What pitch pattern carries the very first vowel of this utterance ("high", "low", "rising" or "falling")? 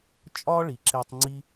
high